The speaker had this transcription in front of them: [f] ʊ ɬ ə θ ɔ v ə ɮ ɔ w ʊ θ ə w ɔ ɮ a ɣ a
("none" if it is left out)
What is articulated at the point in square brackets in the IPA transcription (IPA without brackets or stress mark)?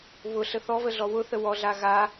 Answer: β